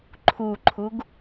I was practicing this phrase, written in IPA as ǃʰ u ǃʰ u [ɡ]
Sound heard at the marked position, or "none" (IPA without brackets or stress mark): ɡ